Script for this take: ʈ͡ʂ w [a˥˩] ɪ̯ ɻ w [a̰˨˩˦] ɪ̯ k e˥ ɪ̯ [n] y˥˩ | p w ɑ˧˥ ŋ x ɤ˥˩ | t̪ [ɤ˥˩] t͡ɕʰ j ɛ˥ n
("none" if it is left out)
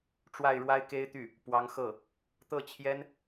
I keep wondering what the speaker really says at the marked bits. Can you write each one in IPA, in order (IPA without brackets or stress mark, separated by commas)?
a˥˩, a˥, t̪, ɤ˥˩